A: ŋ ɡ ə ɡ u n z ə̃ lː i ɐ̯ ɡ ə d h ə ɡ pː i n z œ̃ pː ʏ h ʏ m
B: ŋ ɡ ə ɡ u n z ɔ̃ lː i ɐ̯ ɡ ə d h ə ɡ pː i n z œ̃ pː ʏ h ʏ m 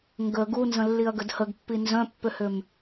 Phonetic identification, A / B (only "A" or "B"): A